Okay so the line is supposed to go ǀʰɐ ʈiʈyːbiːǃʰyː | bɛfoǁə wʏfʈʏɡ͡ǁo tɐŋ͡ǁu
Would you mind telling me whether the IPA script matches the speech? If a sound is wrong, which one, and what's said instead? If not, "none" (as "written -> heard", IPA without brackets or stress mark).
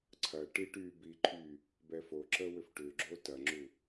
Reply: none